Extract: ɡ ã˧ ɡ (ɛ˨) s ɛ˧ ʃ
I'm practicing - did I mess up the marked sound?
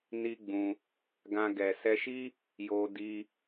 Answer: no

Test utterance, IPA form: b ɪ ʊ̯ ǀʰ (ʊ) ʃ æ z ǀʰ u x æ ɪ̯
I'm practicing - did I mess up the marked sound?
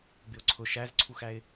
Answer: no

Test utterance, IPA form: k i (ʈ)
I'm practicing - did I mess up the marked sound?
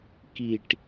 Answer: no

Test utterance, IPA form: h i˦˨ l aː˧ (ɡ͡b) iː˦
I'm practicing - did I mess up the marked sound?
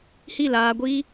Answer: yes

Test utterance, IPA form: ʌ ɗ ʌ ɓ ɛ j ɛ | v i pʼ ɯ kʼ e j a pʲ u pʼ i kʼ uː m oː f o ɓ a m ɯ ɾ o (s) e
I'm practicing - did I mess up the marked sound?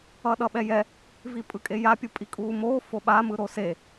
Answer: no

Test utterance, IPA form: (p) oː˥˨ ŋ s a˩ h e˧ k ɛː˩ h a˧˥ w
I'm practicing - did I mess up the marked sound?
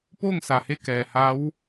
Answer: no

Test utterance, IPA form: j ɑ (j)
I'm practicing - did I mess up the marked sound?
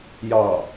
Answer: yes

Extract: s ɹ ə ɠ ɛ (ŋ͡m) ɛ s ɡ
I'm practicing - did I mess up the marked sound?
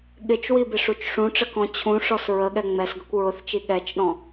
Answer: no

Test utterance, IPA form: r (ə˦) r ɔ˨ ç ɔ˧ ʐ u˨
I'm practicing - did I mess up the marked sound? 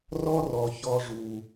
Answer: yes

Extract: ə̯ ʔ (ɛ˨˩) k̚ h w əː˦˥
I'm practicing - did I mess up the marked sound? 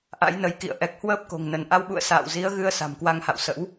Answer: no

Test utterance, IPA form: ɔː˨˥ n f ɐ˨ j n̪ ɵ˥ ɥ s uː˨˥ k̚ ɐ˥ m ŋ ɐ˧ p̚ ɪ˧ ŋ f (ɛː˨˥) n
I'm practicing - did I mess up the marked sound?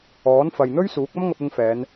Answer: yes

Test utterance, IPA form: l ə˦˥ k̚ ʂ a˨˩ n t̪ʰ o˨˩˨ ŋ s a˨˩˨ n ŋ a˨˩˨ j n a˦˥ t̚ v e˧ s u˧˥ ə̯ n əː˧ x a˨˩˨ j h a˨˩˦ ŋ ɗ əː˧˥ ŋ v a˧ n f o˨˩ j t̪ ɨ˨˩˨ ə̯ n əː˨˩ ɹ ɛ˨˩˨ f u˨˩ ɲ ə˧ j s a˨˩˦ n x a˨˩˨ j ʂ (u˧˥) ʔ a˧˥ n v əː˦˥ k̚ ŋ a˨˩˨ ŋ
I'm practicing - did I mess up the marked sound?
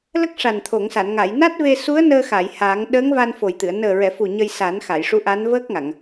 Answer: no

